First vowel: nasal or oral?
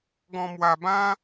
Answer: nasal